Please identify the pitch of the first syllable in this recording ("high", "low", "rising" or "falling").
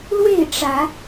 falling